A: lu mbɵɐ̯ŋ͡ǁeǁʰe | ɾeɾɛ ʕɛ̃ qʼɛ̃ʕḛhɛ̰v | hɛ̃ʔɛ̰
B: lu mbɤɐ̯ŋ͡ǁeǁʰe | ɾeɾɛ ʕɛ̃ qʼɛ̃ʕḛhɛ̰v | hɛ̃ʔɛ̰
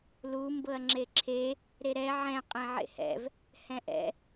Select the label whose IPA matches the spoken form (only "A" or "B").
B